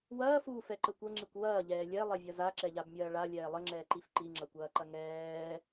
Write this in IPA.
w ɐː f uː f ɛ ǃ ə kʷ ə ŋ͡ǁ i kʷ w ɐː ʎ ɛː lʲ ɛ lˠ ɛ vʲ ɐ z a ǁ ɛ ʎ a b mʲ ɐː ɭ a lʲ ɛː lˠ ə ŋ͡ǁ ɛː ǃ i f ǃ i ŋ͡ǁ ɐ kʷ ɐː ǃ ɐ ŋ ɛː

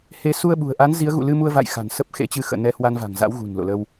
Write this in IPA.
h e˨˦ s u˧ ə̯ ɓ ṳ˨˩ ə̯ ʔ a˨˦ n z i˨˦ ə̯ ɣ ṵ˧˨ l ɨ˧ m u˧ ə̯ v a̰˧˨ j x a̤˨˩ n s ə˦˥ p̚ x ḛ˧˥ t͡ɕ ɨ˧ x ə̰ː˧˨ n ɛ˧ h w a˧ n v a̤˨˩ ŋ z a̰˧˥ w ɣ ṳ˨˩ n l o̰˧˨ l ə˧ w

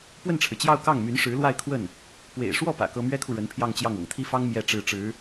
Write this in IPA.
p w ə˥˩ n ʈ͡ʂʰ ɻ̩˩ t͡ɕ j ɑ˥˧ ʊ̯ k ɑ˥˩ ŋ m y˧˥ n ʂ ɻ̩˧˥ l w a˥˧ ɪ̯ kʰ w ə˥˩ n | p w ḛ˨˩ ɪ̯ ʂ w ɔ˥˩ p ä̰˨˩ k ɤ˥ m ɥ ɛ˥ kʰ u˨ ɻ ə˧˥ n pʰ j ɑ˥˧ ŋ t͡ɕ j ɑ˥˩ ŋ ɤ̰˨˩ ŋ t̪ʰ i˥ f ɑ˥ ŋ m j ɛ˥˧ ʈ͡ʂ ɻ̩˥˩ ʈ͡ʂ ɻ̩˧˥

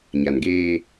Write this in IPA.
ɲ a˨ n ɡ eː˦

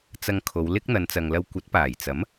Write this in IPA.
t͡s ɐ˨ ŋ kʰ o˨˧ w l ɪ˥ k̚ n̪ ɐ˨˧ n t͡s ɐ˨ ŋ l ɐ˧ w kʷ ɐ˨˥ t̚ p aː˨˩ j t͡s ɐ˨˥ m

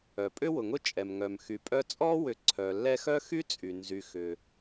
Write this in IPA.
œ˩ pʼ ʏ˦ w ʊ˩ ŋ ʊ˦ t͡ʃʼ ɛ˩ m ŋ œ˩ m x y˨ pʼ œ˦ t͡sʼ ɔ˥ w ʏ˨ ǀʰ œ˩ lː ɛ˦ x œ˥ x y˥ t͡sʼ y˩ n z y˨ x ʏ˩

